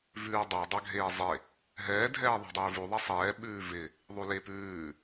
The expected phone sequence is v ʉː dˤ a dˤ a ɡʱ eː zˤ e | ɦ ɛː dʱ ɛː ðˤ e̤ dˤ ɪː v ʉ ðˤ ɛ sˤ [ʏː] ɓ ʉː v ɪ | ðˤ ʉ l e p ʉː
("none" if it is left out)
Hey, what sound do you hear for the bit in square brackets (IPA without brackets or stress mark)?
ɛː